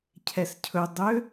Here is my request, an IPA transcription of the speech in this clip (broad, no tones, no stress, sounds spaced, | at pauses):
cʰ ɛ s cʰ ɵ dˤ ø